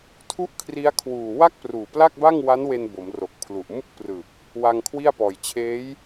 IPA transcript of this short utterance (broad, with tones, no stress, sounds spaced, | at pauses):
tʰ u˥˩ ʔ kʰ r i˦˥ a̯ kʰ w uː˨˩ w a˥˩ k̚ p r uː˨˩ p l a˥˩ k̚ b a˥˩ ŋ w a˦˥ n w e˧ n b o˩˦ m r o˨˩ k̚ pʰ l u˨˩ ʔ m u˥˩ k̚ p r ɯ˨˩ k̚ | w a˧ ŋ kʰ w i˥˩ a̯ p ɔː˨˩ j t͡ɕʰ eː˦˥ j